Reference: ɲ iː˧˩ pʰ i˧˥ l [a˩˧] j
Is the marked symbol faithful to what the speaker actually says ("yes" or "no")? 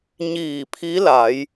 yes